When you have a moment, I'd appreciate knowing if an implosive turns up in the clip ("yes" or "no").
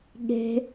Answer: yes